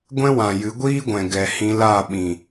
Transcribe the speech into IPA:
ɡʷ ɛ̃˦ w ã˨ j ɨ˨˦ ɡʷ iː˦ ɡʷ ɛ̃˨ ɡ ɛ˨ h ĩ˧ l a˦˨ ɓ ĩ˨

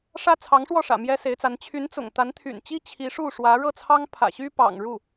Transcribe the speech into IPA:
ʂ ä˥ t͡sʰ ɑ˧˥ ŋ ʂ w ɔ˥˩ ʂ ä̰˨˩ m j ɛ˥ s e˧˥ ɪ̯ t͡s a˧˥ n t͡ɕʰ y˧˥ n t͡s ʊ̰˨˩ ŋ t̪ a˧˥ n t̪ʰ y̰˨˩ n t͡ɕ i˥ t͡ɕʰ i˧˥ ʂ u˥˩ ʂ w ä˧˥ ɻ ɤ˥˩ t͡sʰ ɑ˥ ŋ pʰ ä̰˨˩ ɕ y˥ p ɑ̰˨˩ ŋ ɻ u˥˩

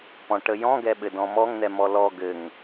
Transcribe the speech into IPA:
p ɔ̃ ʈ ə j ɔ̃ ɡ ɛ ɓ ɘ d ɔ̃ m ɔ ŋ n̪ ɛ m ɔ l ɔ ɡ ɘ ŋ

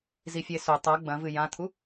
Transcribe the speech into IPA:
z i fʲ e s ɵ tˤ ɐ ɡ͡b ɐ̃ v ɨ j ã t̪ʰ u

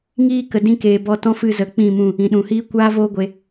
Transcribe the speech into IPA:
ŋ iː˧ k ə˨ d ĩ˧ k eː˨ b ɔ˧ t ɔ̃˦ f ɨ˧ z ə˨˦ k͡p ĩ˦˨ m ũ˦˨ | ĩ˨ ɗ ũ˨ h iː˦ kʷ aː˦ v oː˦ ɡʷ e˧

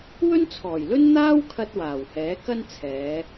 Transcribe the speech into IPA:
w ɵ˥ n t͡sʰ ɔː˨˩ j l ɵ˥ n n̪ aː˥ w kʰ ɐ˧ t̚ w aː˨˩ w h ɛː˨˥ k ɐ˥ n t͡sʰ ɛː˨˧

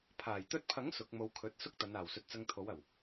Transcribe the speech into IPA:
pʰ aː˨˩ j t̪ ɵ˧ t̚ pʰ ɐ˨˥ ŋ s ʊ˨˥ k̚ m o˧ w kʰ ɵ˨˥ t̚ s ʊ˥ k̚ t̪ ɐ˨˧ n aː˨˩ w s ɵ˨˥ t̚ t͡s ɐ˧ ŋ t̪ʰ o˨˥ w ɐ˨˩ w

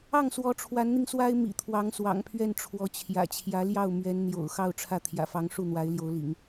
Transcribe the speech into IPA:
ɑ˥˩ ŋ s w ɔ˧˥ ʈ͡ʂʰ w a˧˥ n n̪ i˧ ŋ s w a˥ ɪ̯ m ḭ˨˩ t̪ʰ w ɑ˧˥ ŋ s w ɑ̰˨˩ ŋ pʰ ɥ ɛ˥˩ n ʈ͡ʂʰ w ɔ˧˥ t͡ɕʰ j ä̰˨˩ t͡ɕʰ j ä˧˥ l j ɑ˥˩ ʊ̯ m ɥ ɛ˧˥ n n̪ j o̰˨˩ ʊ̯ x ɑ˥˧ ʊ̯ ʈ͡ʂʰ ä˥˩ t̪ʰ j ä̰˨˩ f ɑ˧˥ ŋ ʂ u˥˩ n̪ w a˧˥ ɪ̯ l j o˧˥ ʊ̯ l ḭ˨˩˦ ŋ

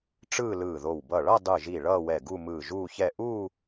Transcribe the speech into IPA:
ʈ͡ʂ ɯː˥˧ l ɯː˧˩ ð o˧˩ w b ʌ˧˩ ɭ ʌ˥˧ dˤ ɯ˧˩ ʒ i˧˩ ɭ ʌː˥˧ w ɛ˧˩ ɡ u˥˧ m ɯː˧˩ ʒ uː˥˧ ç ɛ˥˧ ʔ uː˥˧

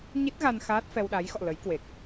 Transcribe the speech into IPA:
ɲ i˦˥ t̚ ɣ a˧ n x aː˦˥ t̚ f ɛ˧ w ɗ a˨˦ j x ɔ̰˧˨ l ə˨˦ j k w e˨˩ k̚

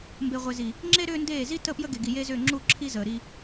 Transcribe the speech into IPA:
m b e˨ ʁʷ e˨ z i˨ | ŋ͡ǁ e˦ ɾ ʏː˦ n d eː˦˨ z i˦ t ə˦˨ p j ə˦ ɡ e˨ ɡ i˨ j e˦ z ʏː˦˨ ŋ͡ǁ u˦˨ ǁʰ i˦ z əː˨ ɾ i˦

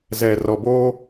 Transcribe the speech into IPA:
z ɛ˨ r ɔ˨ b oː˦

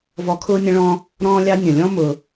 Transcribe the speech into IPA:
v ɔ˧ kʰ ʊː˦ nʲ ə̃˦ ɭ ɔ̃ː˦ | ɾ ɔ̃ː˦ lʲ ɑ˦ nʲ ə̃˨ lʲ ɔ̃˦ m ʊː˧

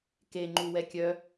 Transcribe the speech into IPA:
k e ŋ͡ǃ u w ɛ kʲ œ

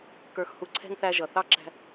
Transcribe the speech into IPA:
k ə˞˧ x h u˧ ǀʰ ɛ̤˦ ŋ θ æ˧ ʒ ʌ˨ θ ɑ˦ ǁ æ̤˧

